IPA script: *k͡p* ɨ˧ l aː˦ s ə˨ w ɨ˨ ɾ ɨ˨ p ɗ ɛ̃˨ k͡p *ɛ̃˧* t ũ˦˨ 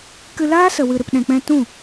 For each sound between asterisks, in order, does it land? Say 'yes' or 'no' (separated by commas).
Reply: no, yes